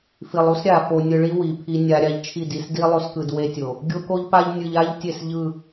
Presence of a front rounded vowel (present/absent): absent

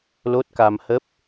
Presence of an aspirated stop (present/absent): absent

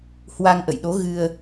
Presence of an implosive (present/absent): present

